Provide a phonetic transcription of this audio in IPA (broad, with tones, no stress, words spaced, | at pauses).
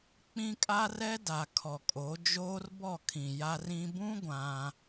k͡pĩ˦kʼa˦rɛ˦da˨ kʰɔ˨kʼo˨˦ d͡ʒoː˦rbɔ˦˨kʰĩ˨ ja˦rĩ˦ bũ˦ ɡʷã˦